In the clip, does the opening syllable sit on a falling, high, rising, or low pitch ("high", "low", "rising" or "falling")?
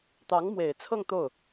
rising